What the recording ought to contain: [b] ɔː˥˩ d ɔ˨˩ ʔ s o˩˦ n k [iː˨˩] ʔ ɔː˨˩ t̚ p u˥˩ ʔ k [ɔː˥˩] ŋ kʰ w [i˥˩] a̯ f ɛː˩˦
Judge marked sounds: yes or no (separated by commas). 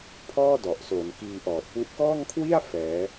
no, no, yes, yes